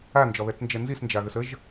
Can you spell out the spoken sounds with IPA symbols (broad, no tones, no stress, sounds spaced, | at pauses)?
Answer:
a n d͡ʒ ɒ β ɛ t͡s n d͡ʒ ɛ n z i s n d͡ʒ a ɣ ə s ə ʒ